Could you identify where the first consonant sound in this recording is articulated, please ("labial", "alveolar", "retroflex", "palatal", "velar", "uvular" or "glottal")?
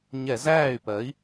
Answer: palatal